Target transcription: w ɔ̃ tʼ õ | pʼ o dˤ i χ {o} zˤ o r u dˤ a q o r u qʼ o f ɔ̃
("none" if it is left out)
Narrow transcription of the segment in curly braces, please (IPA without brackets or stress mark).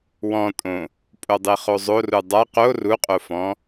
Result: o